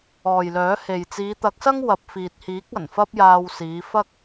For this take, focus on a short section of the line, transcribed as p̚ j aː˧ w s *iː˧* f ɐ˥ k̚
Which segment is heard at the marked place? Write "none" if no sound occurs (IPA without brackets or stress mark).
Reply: iː˨˧